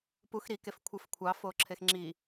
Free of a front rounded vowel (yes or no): yes